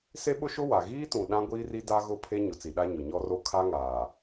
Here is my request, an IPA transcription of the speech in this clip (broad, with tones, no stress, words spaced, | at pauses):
se˦ɓʊ˦ʃʊ˦ wa˨ ɣiː˦tũ˨ ɗã˦ɡʷiː˦ri˦ da˦ ɣʊ˦˨pʰe˦ ɲʊ˨t͡si˨ɗa˦ ɲʊ˨ɲɔ˦ro˦ kʰa˦ŋaː˨